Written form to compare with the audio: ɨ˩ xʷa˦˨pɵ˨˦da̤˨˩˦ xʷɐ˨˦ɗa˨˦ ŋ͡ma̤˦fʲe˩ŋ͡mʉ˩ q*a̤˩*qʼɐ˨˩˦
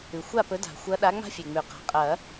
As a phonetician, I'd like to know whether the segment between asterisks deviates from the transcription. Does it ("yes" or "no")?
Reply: no